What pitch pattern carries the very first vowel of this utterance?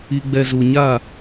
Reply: low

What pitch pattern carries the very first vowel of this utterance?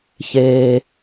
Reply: low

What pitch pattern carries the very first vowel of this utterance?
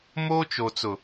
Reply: high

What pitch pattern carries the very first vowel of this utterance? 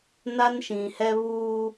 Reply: high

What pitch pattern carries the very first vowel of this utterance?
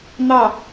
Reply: falling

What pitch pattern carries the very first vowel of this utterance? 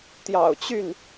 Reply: low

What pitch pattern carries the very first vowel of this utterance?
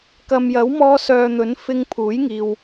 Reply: low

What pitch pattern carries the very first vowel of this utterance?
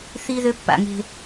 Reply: high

